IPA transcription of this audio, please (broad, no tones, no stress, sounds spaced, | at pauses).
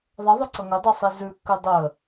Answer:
ðˤ ʌ ðˤ ʊ ǀ ʌ ŋ ɵ dˤ e sˤ i z ʉ kː ʉ dˤ ə